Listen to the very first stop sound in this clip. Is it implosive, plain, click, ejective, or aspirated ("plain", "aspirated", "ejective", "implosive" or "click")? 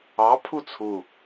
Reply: aspirated